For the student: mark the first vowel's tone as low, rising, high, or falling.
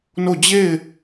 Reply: falling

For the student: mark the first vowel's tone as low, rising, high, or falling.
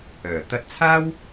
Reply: low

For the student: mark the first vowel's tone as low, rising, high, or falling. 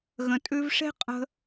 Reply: low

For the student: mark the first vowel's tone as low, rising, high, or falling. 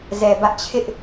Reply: low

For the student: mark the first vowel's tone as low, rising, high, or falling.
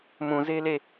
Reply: low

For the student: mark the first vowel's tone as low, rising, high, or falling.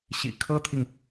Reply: low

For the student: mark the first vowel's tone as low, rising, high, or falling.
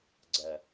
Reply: low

